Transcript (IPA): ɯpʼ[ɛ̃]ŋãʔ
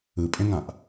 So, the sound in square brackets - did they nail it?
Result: no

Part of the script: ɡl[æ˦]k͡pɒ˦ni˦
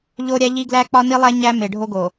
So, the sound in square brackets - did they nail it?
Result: yes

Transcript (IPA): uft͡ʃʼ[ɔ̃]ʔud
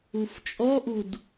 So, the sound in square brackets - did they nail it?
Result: no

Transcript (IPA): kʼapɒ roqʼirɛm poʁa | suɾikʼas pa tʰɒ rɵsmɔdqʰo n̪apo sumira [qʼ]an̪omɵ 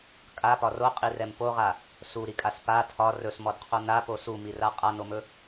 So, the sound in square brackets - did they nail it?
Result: yes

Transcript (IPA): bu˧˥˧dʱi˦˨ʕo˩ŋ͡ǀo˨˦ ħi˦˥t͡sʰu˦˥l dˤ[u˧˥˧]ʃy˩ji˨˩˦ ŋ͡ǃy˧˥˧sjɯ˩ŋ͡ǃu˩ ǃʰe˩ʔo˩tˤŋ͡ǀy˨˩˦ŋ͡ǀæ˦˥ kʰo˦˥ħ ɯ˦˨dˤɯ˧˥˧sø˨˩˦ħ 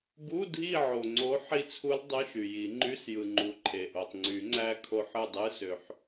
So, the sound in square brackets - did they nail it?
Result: no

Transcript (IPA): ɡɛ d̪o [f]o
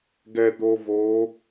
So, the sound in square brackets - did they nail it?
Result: no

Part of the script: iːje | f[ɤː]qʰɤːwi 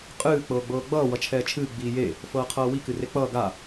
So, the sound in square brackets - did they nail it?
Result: yes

